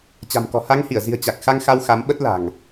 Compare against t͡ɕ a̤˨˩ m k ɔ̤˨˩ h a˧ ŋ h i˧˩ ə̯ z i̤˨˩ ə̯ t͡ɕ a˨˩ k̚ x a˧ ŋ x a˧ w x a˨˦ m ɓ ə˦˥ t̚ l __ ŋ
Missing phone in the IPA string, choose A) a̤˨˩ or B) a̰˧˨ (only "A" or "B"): A